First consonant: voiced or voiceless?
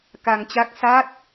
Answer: voiceless